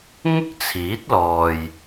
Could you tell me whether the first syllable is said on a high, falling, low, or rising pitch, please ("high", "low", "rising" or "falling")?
high